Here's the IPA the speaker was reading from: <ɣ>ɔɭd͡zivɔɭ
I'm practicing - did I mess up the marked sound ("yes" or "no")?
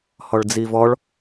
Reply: yes